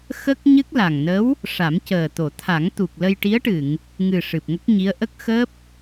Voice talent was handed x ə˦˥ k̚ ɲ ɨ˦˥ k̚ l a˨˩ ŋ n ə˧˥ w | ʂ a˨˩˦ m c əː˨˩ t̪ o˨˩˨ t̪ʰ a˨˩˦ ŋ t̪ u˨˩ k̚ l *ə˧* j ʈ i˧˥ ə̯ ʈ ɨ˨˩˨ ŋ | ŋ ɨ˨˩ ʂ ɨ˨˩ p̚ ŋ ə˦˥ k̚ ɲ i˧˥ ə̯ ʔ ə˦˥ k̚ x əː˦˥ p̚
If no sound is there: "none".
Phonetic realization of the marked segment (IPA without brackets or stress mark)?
ə˧